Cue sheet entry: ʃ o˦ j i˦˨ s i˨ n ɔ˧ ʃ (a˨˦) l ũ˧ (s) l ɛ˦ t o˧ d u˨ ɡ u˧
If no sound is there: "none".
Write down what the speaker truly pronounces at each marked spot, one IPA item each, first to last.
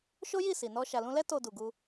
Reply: a˨, none

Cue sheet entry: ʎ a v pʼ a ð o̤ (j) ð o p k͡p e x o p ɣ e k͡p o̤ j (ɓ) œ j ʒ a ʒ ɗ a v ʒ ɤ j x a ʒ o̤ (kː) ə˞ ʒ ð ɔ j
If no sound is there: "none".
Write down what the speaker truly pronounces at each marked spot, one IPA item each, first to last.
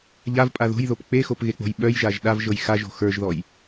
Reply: j, ɓ, x

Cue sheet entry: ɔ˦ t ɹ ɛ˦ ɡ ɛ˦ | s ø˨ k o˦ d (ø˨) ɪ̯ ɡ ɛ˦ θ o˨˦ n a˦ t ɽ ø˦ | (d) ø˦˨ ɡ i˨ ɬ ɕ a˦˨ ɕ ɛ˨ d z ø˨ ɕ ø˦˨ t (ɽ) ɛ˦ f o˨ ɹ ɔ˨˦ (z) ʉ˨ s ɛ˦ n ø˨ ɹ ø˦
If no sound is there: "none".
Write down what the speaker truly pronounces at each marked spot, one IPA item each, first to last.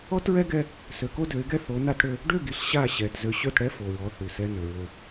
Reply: ø˨˦, ɖ, ɽ, θ

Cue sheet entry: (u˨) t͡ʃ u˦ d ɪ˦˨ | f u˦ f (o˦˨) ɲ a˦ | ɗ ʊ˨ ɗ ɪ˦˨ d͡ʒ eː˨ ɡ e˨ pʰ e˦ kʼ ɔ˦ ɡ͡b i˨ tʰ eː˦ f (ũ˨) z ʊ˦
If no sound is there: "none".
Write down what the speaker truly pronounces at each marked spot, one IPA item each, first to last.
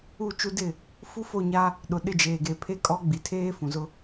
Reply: u˦˨, o˦˨, ũ˨

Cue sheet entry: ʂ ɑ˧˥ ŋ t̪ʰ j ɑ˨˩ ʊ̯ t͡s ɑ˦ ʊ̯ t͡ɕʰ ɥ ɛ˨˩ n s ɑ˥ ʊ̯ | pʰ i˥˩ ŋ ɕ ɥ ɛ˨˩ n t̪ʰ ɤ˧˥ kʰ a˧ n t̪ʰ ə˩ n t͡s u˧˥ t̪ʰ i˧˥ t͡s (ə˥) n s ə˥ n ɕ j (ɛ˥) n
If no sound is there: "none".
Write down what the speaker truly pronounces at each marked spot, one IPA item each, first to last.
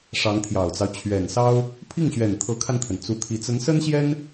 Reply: ə˧˥, ɛ˥

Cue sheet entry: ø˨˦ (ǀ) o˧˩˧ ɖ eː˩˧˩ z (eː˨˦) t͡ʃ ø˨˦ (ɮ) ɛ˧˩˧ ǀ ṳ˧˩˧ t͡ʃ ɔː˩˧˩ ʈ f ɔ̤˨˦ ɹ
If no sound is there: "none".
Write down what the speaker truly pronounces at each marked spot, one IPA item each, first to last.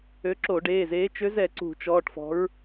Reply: ǁ, eː˨˦, z

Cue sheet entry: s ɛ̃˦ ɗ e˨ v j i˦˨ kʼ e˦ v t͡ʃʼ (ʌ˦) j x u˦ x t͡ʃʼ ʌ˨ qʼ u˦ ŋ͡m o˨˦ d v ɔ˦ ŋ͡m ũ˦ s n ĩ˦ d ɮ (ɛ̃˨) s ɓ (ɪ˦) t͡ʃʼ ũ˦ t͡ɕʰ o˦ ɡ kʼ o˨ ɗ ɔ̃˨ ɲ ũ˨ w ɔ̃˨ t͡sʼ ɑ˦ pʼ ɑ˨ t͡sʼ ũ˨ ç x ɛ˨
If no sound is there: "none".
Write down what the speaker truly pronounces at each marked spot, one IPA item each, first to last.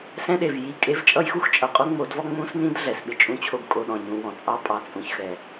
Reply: ʌ˦, ɛ˨, ɪ˦

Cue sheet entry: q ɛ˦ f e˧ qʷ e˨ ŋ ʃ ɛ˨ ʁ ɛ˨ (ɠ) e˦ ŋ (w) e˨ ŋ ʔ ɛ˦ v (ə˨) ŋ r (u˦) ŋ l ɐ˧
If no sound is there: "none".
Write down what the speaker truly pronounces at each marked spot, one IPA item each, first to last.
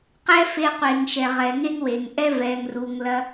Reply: ŋ, w, ɛ˨, u˨

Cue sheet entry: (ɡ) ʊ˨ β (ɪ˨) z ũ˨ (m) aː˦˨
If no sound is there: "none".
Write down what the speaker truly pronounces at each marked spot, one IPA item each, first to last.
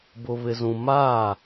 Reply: b, ɪ˨, m

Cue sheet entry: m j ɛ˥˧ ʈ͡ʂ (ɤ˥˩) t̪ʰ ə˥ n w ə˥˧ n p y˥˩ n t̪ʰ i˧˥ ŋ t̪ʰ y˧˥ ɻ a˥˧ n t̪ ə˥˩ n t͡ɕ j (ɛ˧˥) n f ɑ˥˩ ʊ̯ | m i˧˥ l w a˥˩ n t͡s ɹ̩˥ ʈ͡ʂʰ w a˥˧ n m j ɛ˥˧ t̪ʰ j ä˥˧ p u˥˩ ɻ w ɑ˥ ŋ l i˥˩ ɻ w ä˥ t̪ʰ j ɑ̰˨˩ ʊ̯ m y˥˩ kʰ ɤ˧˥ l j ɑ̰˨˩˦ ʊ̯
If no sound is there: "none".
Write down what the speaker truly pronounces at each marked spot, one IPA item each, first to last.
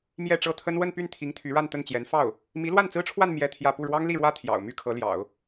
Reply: ɤ˥˩, ɛ˧˥

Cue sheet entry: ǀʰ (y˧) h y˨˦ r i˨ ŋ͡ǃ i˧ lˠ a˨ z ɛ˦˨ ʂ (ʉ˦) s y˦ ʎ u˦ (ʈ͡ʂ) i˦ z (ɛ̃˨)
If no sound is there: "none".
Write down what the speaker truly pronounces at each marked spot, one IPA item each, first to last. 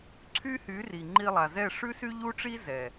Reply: y˦, ʉ˦, ʈ͡ʂ, ɛ˨

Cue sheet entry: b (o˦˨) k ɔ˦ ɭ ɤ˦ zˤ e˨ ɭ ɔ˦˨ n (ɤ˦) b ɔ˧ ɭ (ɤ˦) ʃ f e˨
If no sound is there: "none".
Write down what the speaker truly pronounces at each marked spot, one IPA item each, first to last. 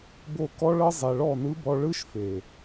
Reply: o˧, ɯ˦, ɯ˦

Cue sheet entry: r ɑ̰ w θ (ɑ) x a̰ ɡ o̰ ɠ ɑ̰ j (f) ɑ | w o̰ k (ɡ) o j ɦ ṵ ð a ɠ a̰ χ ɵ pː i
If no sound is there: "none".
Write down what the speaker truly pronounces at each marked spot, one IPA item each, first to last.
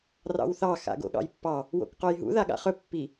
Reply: ɑ, pː, q

